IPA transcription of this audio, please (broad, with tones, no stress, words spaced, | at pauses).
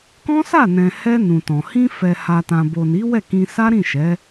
kɔ̃˦sa˦˨nɛ̃˨hɛ˧ nũ˨tɔ̃˨ hĩ˧fɛ˨ ha˨tã˨bo˨ni˨˦ wɛ˦˨kĩ˧ sa˦ɾĩ˦˨ʃɛ˨˦